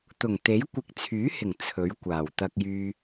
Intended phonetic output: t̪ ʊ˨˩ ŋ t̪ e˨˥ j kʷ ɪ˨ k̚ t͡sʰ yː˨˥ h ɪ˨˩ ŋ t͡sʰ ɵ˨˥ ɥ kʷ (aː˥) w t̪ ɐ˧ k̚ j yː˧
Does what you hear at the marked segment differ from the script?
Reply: yes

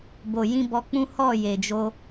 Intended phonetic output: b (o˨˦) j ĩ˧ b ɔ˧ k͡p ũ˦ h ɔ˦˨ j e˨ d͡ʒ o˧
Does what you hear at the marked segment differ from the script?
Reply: yes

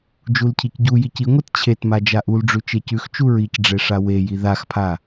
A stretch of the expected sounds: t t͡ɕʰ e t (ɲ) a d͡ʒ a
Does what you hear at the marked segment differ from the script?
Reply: yes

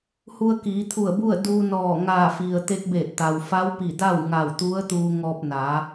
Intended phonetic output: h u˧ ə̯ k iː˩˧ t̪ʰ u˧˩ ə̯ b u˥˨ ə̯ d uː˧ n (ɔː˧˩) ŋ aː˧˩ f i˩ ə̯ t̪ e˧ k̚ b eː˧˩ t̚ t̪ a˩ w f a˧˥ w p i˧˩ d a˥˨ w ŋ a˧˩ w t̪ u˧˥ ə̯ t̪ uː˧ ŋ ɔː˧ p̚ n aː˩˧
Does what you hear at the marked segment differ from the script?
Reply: no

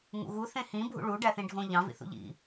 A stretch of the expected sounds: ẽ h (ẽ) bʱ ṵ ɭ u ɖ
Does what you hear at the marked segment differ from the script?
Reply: yes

